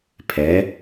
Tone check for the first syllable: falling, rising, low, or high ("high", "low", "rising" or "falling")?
rising